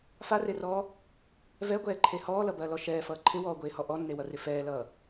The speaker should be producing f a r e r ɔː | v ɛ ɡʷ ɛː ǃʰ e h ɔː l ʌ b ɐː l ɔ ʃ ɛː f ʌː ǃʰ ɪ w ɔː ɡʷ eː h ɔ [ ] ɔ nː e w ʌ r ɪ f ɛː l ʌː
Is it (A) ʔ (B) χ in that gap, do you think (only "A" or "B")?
A